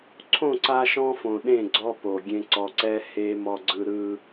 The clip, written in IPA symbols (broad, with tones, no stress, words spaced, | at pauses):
ǀʰõ˦˨ǀa˦ʃɔ̃˦fõ˨ ɗẽ˦˨ɡ͡ǀɔ˦ po˨ ɡʲẽ˦ ǀɔ˨ǀɛ˦ he˦ mɔ˦ɡ͡ǀɯ˦ ɾɯ˦